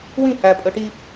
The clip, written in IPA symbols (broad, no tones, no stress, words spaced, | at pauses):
wĩ hæ pʼœʈi